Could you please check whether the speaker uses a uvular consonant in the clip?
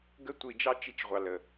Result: yes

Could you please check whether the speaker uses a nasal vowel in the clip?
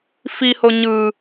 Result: no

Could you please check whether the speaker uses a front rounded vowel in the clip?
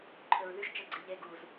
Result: yes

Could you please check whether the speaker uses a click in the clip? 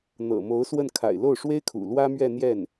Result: no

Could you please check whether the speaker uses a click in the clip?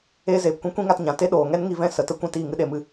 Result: no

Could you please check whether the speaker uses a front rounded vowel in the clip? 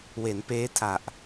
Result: no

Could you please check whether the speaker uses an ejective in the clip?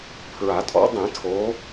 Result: yes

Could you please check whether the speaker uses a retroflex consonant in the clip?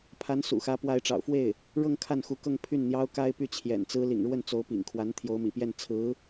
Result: yes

